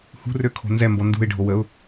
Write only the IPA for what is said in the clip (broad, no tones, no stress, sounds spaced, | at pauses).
h ṳ r ø kʰ o̤ n z ɛ m b ɔ n d ṳ ɪ̯ ɖʱ o w ə ʊ̯